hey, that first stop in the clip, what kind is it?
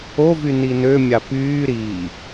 plain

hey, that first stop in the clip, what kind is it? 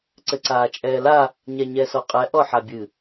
click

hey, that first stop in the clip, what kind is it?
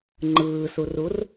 click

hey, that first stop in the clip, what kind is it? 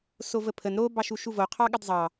aspirated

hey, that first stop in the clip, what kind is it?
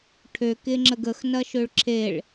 aspirated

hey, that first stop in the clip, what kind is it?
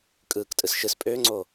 ejective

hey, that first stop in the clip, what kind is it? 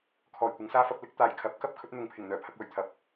aspirated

